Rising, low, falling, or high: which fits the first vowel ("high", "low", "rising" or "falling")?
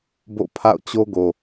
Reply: falling